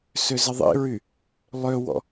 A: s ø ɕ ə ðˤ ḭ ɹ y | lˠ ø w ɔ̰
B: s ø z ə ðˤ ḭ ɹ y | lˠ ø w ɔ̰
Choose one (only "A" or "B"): B